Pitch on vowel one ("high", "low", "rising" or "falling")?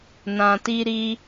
low